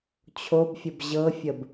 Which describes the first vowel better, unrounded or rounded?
rounded